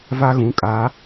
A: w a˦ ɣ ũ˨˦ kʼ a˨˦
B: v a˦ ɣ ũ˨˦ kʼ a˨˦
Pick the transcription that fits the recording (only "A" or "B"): B